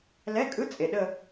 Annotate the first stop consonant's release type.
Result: ejective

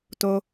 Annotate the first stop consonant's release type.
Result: plain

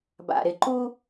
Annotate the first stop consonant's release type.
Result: plain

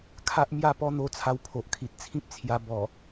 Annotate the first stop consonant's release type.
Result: aspirated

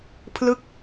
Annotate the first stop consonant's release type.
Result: aspirated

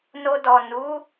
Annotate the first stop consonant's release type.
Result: plain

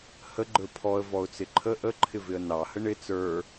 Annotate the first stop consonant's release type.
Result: click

